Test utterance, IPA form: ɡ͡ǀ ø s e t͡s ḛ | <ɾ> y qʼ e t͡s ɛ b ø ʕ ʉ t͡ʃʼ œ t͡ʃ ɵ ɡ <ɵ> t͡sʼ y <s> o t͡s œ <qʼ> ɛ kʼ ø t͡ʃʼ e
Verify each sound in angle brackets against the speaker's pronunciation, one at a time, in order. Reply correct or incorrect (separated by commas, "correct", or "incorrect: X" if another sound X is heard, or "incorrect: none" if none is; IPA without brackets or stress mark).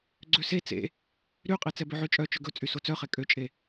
correct, correct, correct, incorrect: χ